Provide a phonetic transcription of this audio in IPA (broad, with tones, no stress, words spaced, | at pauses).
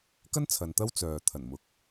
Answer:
kɐ˥n t͡sʰɐ˨nt̪ɐ˥w t͡sœː˨t̪ʰɐ˨˩nmʊ˨k̚